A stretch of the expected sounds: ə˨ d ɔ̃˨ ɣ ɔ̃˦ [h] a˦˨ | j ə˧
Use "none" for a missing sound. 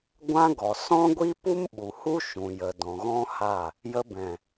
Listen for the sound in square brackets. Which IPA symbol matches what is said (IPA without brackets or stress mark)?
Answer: h